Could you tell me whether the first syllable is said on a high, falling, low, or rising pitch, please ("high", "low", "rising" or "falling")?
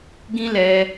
high